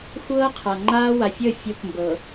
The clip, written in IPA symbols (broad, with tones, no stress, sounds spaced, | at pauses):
xʷ ɤː˦ qʰ a˨ ŋ͡ǃ aː˦ w a˨ fʲ ə˦˨ fʲ o˦ k m b ɤ˨